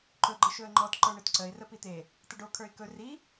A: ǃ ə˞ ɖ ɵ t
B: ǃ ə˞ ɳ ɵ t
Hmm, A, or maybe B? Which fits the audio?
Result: B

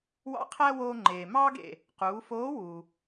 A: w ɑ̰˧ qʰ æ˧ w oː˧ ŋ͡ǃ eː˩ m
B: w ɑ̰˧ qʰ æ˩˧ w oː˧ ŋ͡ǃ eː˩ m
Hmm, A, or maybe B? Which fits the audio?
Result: A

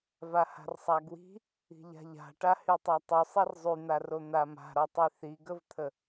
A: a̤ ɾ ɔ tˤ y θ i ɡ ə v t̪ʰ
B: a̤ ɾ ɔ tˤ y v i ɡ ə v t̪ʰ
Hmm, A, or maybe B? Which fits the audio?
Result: A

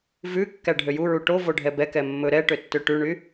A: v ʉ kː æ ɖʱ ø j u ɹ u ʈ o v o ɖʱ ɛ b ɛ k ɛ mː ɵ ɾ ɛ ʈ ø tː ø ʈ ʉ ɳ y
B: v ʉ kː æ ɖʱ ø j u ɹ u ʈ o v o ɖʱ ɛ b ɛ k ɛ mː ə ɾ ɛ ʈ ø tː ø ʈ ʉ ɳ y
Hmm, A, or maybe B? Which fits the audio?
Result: A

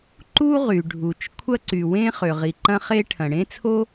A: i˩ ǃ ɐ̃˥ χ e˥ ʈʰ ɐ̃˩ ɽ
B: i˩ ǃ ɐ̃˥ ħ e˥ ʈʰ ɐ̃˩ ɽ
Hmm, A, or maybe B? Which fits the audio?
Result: A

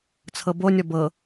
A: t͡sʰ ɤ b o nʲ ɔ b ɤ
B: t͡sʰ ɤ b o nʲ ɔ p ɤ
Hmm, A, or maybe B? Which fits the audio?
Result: A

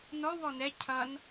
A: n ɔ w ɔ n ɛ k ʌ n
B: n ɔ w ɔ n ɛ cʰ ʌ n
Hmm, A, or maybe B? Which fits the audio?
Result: B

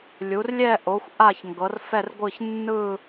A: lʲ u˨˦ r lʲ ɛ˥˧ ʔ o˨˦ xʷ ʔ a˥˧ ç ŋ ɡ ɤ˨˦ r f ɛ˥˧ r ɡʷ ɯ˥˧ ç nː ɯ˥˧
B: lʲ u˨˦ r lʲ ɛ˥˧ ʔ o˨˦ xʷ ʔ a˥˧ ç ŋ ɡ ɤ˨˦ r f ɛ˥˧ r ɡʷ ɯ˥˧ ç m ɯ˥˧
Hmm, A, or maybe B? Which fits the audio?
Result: A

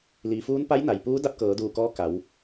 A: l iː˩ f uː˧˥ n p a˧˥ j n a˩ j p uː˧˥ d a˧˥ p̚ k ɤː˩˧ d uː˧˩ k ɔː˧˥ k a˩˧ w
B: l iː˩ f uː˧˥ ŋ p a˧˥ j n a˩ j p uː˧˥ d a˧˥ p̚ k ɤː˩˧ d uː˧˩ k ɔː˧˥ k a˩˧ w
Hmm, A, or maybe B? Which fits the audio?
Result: A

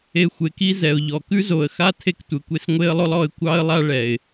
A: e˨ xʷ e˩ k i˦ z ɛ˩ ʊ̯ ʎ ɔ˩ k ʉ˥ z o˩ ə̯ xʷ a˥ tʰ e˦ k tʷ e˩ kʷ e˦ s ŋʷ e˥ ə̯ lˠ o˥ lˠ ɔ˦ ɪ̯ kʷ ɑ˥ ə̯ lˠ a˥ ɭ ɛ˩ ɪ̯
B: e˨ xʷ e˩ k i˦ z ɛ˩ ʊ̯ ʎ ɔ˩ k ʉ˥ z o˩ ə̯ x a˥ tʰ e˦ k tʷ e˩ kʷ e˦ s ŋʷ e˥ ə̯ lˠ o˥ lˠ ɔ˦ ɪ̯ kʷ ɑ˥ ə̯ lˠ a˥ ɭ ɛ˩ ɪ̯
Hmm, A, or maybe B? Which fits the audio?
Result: B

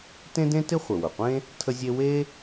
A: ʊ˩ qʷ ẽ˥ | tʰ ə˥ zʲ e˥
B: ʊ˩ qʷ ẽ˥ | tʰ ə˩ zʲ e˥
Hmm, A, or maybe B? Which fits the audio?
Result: A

